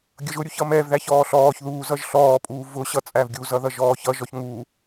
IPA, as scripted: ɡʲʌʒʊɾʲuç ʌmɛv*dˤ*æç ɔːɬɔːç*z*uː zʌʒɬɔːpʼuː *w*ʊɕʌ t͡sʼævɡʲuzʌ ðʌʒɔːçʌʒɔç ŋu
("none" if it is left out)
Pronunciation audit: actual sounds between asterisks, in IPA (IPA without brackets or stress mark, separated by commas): ð, ð, v